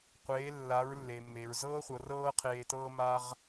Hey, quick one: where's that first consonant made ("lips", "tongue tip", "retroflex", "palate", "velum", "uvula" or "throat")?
uvula